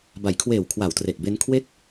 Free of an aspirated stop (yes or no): no